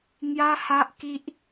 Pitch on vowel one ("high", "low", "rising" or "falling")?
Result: high